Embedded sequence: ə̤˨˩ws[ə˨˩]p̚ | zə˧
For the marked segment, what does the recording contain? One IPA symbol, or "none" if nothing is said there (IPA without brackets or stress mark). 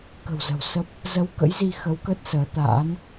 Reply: ə˦˥